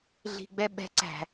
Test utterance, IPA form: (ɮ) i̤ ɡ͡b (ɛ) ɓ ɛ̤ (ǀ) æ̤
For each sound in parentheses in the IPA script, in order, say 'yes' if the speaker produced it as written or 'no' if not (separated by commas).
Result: yes, yes, yes